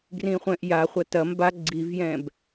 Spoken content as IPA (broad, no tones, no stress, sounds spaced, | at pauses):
ɡ r ĩ χʷ ɛ̃ ʔ j a χʷ ɐ t ɐ m b a ɡ͡ǀ i v j ɛ̃ b